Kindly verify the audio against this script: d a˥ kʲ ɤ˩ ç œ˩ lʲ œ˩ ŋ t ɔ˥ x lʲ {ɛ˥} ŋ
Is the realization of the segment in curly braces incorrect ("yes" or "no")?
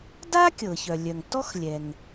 yes